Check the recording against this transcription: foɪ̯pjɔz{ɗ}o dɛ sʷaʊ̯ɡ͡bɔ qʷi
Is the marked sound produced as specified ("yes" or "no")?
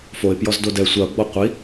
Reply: no